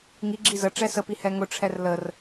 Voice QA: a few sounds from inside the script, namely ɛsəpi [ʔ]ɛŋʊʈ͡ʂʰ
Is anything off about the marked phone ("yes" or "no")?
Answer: yes